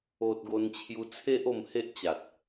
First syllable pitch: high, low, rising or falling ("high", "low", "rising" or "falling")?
high